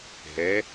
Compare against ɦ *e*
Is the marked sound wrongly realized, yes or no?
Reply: yes